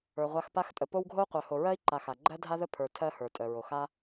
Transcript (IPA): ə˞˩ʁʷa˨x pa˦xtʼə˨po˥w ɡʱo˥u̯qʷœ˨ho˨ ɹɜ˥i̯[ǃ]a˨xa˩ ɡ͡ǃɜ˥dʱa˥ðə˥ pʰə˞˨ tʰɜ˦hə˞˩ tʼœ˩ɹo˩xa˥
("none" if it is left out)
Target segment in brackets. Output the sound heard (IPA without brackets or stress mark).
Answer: ǃ